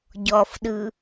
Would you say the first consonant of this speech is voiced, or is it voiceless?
voiced